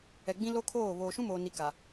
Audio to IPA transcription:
ɛ˨ɡ͡bĩ˦lo˦kʰoː˦˨ βoː˨ʃũ˦moː˨ni˨ ka˨

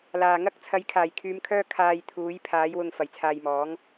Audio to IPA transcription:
laː˨˩ŋɐ˥k̚ t͡sʰɐ˨˥jkʰaː˨˩jkʰyː˨˧mkʰœː˥ kʰaː˧j t̪ʰuː˨˥jpʰaː˨˥j wʊ˧ŋ fɐ˨jt͡sʰaː˧jmɔː˨˥ŋ

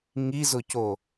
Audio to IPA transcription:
ŋizʊco

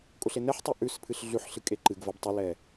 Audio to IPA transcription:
kʼʊɬe nɛħtˤu ʔʉspʰɨɬ ɮʉħɬɨkʼe ǃɨɡvɐb tˤʊlɛ

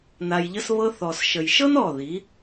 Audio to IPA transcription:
na˧jʎə˦sβɤ˦ θɔ˨sʃə˨jʃɤ˦n ɔ˦˨ði˨˦

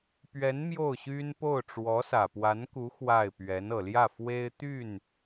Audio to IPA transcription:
pɥɛ˧˥n mjo˥˩ʊ̯ɕy˥npo˥˩ʊ̯ ʈ͡ʂwɔ˧˥sä˨˩pwa˧˥nku˧˥ xwa˥˩ɪ̯ pɥɛ˧˥nɤ˨˩ ljä˥˩fwe˥ɪ̯t̪y˥˩n

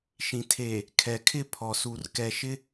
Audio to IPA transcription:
ʃĩ˨ tʰe˨ | kʰɛ˨ kʰɪ˦˨ pʰɔ˨su˨r kɛ˨ʃɪ˦

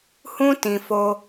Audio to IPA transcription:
hũ˦ tĩ˧fo˦

